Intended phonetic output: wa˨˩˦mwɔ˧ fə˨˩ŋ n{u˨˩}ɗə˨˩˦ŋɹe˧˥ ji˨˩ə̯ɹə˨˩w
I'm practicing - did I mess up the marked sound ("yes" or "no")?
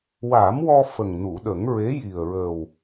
yes